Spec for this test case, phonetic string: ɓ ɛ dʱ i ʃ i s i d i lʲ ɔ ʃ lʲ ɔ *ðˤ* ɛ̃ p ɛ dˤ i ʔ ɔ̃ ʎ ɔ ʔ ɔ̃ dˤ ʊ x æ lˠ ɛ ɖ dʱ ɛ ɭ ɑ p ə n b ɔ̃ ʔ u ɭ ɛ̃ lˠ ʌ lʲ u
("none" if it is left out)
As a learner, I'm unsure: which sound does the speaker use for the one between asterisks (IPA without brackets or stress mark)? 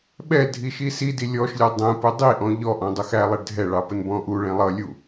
dˤ